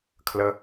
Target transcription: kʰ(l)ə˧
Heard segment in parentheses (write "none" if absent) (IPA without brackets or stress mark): l